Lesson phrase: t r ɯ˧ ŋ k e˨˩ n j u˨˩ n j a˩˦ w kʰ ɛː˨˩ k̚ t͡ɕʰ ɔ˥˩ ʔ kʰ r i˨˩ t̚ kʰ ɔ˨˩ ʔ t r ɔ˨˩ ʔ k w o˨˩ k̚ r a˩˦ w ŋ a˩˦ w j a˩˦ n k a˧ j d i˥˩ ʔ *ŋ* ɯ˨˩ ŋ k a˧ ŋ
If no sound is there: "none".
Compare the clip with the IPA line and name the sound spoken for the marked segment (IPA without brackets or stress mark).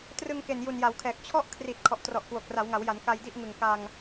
ŋ